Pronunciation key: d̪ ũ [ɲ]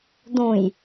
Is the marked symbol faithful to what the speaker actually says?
no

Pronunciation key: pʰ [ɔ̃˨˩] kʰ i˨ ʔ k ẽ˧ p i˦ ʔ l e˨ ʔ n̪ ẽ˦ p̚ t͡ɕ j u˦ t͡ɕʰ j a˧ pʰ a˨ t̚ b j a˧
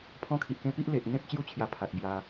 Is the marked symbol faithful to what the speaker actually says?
no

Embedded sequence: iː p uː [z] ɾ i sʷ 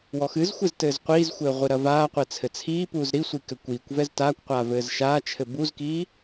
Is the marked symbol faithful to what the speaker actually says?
yes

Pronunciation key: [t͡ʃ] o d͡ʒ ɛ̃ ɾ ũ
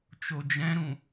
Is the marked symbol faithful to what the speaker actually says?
yes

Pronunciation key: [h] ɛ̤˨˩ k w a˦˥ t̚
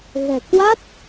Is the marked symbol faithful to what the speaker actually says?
no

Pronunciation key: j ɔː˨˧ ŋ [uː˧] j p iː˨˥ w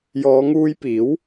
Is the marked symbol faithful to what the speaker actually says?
yes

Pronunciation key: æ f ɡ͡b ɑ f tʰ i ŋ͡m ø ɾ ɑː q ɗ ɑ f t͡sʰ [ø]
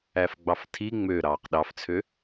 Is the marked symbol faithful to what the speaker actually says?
yes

